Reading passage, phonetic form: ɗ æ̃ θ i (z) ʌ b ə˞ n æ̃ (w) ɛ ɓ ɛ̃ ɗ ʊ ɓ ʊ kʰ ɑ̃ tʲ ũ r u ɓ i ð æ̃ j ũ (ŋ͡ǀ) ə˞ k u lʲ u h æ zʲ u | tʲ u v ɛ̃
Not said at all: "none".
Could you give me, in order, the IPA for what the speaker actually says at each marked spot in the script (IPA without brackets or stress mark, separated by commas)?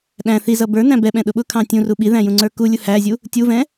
z, b, ŋ͡ǀ